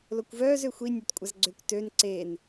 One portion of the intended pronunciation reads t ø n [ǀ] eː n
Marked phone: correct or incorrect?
correct